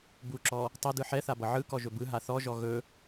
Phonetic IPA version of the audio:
buǁɔ | tˤʌdɯ ħɛθabʌ ʕɯkɔʒɵ bɯɦa θɔʒɔ ɣɵ

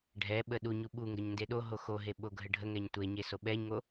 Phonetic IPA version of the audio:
ɖʱɛɓə ɗu ɲuɓuŋɡəɲ ndeɗoɦo xoɦe ɓoɡʱəɖʱəŋɛɲ tʷeɲe soɓɛɲŋo

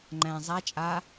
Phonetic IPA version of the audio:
ŋ͡ǃæ̃ zˤa t͡ʃʼa

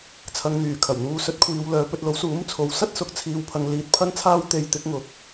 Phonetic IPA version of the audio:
t͡sʰɐ˨ŋn̪yː˨˩kʰɐ˨˩w n̪uː˧ sɵ˨˥t̚kʷʰiː˨˧wlœː˨˧ pɵ˧t̚lo˨˥w suː˨˥mt͡sʰo˨w sɐ˥t̚sʊ˨˥k̚ t͡sʰiː˧wpʰɐ˧ŋ liː˧t̚pʰɐ˥nt͡sʰaː˥w t̪e˧jt̪ɪ˨˥k̚ŋʊ˨˥k̚

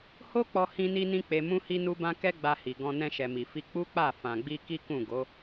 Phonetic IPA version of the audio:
ho˦k͡pɔ˧ hĩ˧ni˧nĩ˧ k͡pe˧mũ˦hi˦ nu˦bã˦ kɛ˦ɡ͡ba˧hi˨ ɡɔ̃˧ nɛ̃˧ʃɛ˨mi˨ fi˧ k͡pu˦k͡pa˦˨ fã˨ɡ͡bi˧ ki˦kũ˦˨ ɡo˨˦

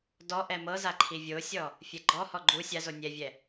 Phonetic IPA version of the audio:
dɔ ʔɛmɤza ǃʰivʲosʲɔ | fʲɛɡ͡ǃɔhɔ ɡ͡ǃu sʲazo nʲɛvʲɛ

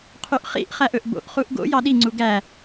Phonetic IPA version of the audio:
qʰyʔχḭʔ χæʔɵʔbo̰ʔ χuʔɡo̰ jɑɗi ŋ͡ǀuɡæ

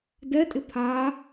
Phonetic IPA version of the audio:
dɛtʼɪ pʰa

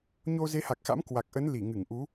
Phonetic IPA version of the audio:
ɲo˧ze˨˦ha˨˩k̚xa̰˧˥m kwa˨˩k̚ʔə˨˦n li˧˩ŋɨ˧˩ŋ ʔu˨˦

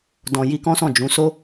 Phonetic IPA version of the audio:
dɔ̃˨ji˧ kɔ̃˦sɔ̃˦˨d͡ʒũ˨˦ so˦

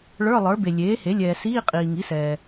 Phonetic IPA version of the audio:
ɭə˞˧˥˧lˠə˞˩˥ be˨ lʲeː˩˥he˩˥ lʲɛː˨ siː˧˥˧qʼiː˨ ŋi˩˥sɛː˨

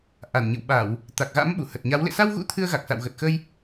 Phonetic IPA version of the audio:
ʔa˧˩nɲɨ̰˧˨wɓa˧˩˨w | t̪a˨˩k̚ɣa̰˧˥m ɓu˧˩hə˨˩t̚ɲa˨˦w lḛ˧˨sa˧wɣṵ˧˥ t̪ʰɨ˧ə̯ɣa˨˩k̚sa̰˧˨w ɣə˨˩t̚xəː˧j

